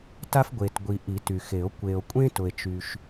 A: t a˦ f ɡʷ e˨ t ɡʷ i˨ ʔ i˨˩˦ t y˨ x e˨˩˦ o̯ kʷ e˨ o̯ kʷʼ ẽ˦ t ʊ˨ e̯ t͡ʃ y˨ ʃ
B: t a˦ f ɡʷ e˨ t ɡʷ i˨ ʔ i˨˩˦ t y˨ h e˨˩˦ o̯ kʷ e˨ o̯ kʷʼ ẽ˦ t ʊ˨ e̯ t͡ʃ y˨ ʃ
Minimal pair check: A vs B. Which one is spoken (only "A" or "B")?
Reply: A